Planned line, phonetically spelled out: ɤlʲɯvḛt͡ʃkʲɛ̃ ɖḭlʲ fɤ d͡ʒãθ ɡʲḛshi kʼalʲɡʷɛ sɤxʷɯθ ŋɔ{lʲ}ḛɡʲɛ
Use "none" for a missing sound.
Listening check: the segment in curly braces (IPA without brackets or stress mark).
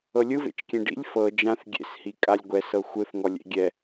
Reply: lʲ